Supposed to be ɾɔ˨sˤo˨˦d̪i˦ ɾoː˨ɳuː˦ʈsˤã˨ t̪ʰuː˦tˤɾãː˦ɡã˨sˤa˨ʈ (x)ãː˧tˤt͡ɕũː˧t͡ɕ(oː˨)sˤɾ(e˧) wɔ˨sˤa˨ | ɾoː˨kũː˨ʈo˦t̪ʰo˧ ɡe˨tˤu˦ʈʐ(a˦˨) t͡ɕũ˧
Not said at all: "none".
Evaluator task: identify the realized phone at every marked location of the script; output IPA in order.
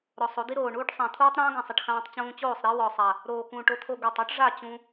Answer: x, oː˦˨, e˦, a˦˨

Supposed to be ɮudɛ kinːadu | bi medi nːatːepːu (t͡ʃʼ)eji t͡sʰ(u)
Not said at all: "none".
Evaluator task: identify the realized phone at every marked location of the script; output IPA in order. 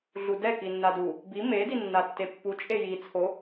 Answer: t͡ʃʼ, o

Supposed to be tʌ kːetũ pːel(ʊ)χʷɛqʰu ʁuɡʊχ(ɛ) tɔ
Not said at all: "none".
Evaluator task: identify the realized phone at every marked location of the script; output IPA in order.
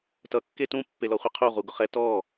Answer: ɔ, ɛ

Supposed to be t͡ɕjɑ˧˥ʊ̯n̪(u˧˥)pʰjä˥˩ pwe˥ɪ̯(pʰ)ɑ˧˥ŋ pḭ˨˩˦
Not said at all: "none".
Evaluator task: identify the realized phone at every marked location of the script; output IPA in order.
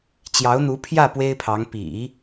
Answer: u˧˥, pʰ

